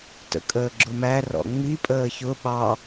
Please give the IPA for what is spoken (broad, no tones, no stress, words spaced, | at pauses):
tə̰kʼəːɡ͡ǁʊmæ rɔ̰ŋ͡mi pʼəːçʊ ɓɑ